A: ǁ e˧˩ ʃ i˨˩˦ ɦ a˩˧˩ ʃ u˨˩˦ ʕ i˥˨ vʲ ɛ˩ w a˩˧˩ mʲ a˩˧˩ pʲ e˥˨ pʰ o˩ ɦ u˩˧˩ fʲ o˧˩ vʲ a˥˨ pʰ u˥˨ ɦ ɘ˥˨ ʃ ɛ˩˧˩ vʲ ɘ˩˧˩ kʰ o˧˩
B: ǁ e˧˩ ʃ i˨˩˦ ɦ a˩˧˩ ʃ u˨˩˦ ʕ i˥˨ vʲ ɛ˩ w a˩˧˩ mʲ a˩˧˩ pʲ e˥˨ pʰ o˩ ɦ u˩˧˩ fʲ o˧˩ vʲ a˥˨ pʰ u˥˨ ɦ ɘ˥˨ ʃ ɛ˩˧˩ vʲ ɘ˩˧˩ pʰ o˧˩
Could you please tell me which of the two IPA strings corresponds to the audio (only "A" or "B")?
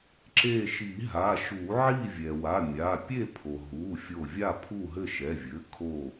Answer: A